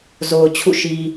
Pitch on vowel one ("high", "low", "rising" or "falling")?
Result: low